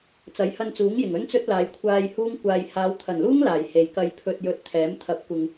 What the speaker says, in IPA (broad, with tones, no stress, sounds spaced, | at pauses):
t͡s ɐ˨˥ j h ɐ˧ n t͡s uː˨˥ ŋ j ɪ˨˩ ŋ ɵ˥ n t͡s ɵ˥ t̚ l aː˨˧ j kʷʰ aː˧ j h uː˥ ŋ kʷ aː˧ j h aː˨˧ w t̪ʰ ɐ˨˩ n l uː˥ ŋ l aː˨˩ j h e˨ j k ɐ˧ j pʰ ɵ˧ t̚ j ɵ˧ t̚ t̪ʰ ɛː˨˥ m t̪ʰ ɐ˨˥ p̚ kʷ ɪ˨ ŋ